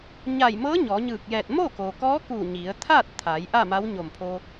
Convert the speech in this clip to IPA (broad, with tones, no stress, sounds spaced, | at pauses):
ɲ a˧˩ j m ɤː˧˥ ɲ ɔː˩˧ ɲ ɯː˧˩ k̚ j ɛː˧˩ t̚ m o˥˨ k oː˩ k ɔː˧˥ k uː˧˩ ɲ i˩˧ ə̯ t̪ʰ aː˥˨ t̚ t̪ʰ a˩˧ j ʔ a˥˨ m a˧˥ w ɲ o˧˩ m pʰ o˧